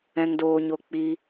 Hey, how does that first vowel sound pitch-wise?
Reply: high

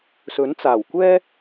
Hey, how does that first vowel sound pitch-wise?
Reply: rising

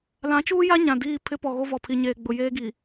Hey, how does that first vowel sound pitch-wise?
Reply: rising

